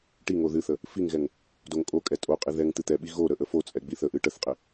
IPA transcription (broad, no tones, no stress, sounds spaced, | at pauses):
ʈ i ŋ o ð ɨ θ ə | f i ŋ ɣ ɛ ŋ | d o ŋ kʼ o kʼ ɛ tʼ o qʼ i ð ɛ ŋ t̪ ɨ t̪ ɛ ɓ i ɣ o ɾ ə ʔ ə f o t͡sʼ ɛ ɡ͡b i θ ə ʔ ɨ ʈ ə θ qʼ ɪ